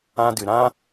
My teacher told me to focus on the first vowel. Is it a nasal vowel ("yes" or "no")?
yes